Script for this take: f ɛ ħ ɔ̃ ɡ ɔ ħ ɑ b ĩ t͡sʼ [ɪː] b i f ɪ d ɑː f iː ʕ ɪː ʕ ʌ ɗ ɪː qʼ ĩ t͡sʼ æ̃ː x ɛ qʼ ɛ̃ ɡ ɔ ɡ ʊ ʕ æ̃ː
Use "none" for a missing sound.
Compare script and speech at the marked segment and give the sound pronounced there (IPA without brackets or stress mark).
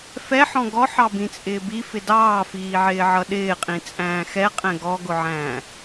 ɪː